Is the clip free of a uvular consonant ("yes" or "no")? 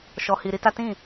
yes